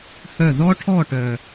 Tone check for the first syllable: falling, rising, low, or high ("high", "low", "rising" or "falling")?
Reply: falling